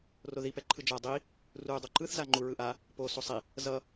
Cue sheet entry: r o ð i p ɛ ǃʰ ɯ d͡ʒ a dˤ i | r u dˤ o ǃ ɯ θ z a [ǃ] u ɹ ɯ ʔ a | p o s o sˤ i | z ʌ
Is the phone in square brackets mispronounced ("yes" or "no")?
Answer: yes